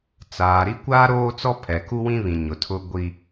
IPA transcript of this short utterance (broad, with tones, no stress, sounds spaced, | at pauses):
t͡s aː˨ ɾ i˦ kʷ aː˦ ɾ oː˦ t͡s ɔ˦ pʰ ɛ˨ k u˦ w ĩ˦ β ĩ˨ ɲ ʊ˨ tʰ ʊ˦ ɡʷ i˦